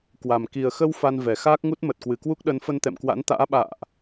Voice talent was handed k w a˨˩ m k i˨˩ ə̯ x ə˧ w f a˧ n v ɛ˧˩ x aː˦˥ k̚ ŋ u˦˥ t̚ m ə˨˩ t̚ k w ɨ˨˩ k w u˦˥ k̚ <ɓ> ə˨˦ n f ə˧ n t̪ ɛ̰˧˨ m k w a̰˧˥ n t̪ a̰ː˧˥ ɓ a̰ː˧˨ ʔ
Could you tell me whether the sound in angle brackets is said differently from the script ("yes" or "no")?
yes